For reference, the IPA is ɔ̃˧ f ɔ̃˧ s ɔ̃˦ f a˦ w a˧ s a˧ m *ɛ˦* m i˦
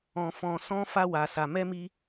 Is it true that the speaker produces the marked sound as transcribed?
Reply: yes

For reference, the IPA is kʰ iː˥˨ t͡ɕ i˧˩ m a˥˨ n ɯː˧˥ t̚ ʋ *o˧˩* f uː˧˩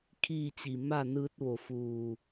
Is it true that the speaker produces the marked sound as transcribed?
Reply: yes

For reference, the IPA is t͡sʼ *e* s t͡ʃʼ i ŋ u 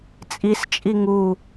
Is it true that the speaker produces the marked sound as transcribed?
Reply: no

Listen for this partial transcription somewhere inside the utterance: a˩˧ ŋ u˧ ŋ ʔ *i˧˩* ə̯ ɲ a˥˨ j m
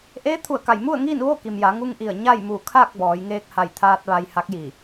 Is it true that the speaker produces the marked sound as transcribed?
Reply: yes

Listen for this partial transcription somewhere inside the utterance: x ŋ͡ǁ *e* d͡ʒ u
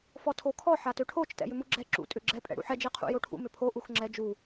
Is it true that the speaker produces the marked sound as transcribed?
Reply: no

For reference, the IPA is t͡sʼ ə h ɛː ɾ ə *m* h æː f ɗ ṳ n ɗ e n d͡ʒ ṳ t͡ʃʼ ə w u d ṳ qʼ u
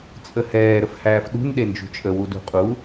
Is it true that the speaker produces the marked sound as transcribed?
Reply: no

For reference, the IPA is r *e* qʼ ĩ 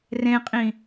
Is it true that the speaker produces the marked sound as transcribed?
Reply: no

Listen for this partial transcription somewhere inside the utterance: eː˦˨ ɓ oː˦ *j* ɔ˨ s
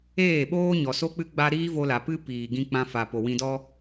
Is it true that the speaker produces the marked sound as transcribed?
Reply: no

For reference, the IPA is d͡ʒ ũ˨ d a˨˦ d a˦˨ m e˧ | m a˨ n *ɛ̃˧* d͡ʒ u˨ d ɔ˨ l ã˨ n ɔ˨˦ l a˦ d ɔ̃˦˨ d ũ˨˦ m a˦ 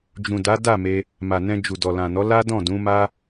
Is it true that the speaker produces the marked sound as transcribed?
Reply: yes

